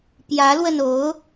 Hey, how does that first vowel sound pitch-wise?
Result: rising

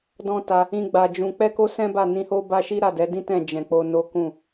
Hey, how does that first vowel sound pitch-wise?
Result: high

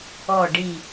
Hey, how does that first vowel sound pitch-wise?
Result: falling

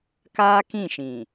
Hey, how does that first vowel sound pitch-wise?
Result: high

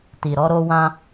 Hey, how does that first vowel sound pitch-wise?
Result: low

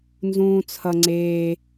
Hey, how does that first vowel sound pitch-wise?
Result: low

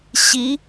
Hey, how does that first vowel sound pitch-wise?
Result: rising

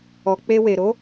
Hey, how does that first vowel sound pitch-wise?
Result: low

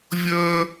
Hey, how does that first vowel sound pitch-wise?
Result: high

